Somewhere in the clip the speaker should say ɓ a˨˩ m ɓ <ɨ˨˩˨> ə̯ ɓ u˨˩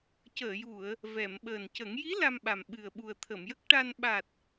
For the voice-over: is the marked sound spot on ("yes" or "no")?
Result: no